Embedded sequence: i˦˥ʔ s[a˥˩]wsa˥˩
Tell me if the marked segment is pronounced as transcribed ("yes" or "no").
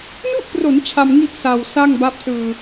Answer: no